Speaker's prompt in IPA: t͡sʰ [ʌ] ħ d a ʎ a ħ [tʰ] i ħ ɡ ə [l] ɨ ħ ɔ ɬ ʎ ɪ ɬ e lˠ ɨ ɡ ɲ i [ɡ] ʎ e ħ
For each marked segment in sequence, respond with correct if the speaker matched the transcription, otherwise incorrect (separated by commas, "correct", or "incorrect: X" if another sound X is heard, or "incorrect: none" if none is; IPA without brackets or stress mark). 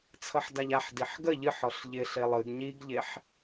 correct, incorrect: d, incorrect: ʎ, correct